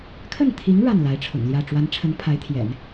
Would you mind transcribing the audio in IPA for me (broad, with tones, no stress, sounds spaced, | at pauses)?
kʰ ə˥˩ n t̪ʰ i˧˥ ŋ ɻ a˥˩ n l a˧˥ ɪ̯ ʈ͡ʂʰ ʊ̰˨˩ ŋ l j ä˥˩ ʈ͡ʂ w a˧˥ n ʈ͡ʂʰ ə˧˥ n pʰ a˧˥ ɪ̯ t̪ʰ j ɛ̰˨˩˦ n